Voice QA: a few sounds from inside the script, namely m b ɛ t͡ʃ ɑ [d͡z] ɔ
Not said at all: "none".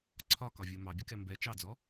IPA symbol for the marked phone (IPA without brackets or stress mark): d͡z